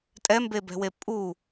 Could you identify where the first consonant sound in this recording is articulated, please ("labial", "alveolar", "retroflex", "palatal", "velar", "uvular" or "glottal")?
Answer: alveolar